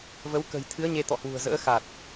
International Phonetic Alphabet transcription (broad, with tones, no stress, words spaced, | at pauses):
və˨˦w kə̤˨˩jt̪ʰɨ˨˦ə̯ ɲe˧t̪ɔ̰˧˨hwṳ˨˩ə̯zə̰ː˧˥ xa˨˩t̚